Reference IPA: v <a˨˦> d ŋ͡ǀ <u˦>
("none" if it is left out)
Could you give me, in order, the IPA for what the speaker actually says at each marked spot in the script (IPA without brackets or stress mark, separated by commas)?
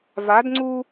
a˨˦, u˦